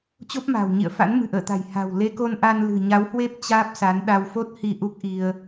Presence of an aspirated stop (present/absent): absent